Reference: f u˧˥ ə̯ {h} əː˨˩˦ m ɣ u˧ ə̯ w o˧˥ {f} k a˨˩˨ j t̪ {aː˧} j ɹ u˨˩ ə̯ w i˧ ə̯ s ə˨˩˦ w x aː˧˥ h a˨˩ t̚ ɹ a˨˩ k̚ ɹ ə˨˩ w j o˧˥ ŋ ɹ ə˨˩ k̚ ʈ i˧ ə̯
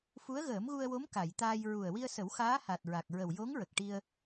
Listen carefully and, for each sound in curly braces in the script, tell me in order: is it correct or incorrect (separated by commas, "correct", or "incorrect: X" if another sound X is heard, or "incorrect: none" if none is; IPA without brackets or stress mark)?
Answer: incorrect: ɣ, incorrect: m, correct